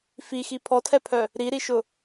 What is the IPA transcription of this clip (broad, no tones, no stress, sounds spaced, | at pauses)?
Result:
f i x i pʰ ɔ tʰ ɛ pʰ œ | ɾ i ɾ i ʃ ʊ